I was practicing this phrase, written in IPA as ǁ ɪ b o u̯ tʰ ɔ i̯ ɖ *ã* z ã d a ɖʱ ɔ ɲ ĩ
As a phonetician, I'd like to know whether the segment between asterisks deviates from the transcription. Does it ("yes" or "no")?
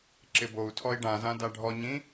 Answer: no